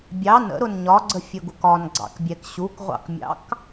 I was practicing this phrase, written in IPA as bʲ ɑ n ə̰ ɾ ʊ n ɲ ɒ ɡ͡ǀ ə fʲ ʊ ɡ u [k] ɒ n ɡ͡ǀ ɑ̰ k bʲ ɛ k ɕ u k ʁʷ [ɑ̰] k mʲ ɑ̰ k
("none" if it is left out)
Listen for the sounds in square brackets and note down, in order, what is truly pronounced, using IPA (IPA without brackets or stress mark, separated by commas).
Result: k, ɑ̰